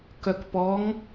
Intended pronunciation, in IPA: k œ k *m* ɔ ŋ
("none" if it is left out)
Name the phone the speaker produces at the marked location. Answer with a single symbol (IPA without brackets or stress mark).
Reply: p